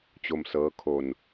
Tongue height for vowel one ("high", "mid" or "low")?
mid